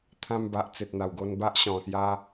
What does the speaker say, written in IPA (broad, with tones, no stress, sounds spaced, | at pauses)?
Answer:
t̪ʰ ã˧ m b a˨ ʔ t͡s e˨ t̚ n̪ a˨˩ w ɡ o˧ n b a˦ ʔ ɕ ɔ̃˨˩ s j a˧